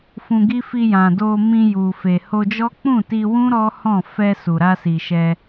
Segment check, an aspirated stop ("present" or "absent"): absent